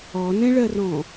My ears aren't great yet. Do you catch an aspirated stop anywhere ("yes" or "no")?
no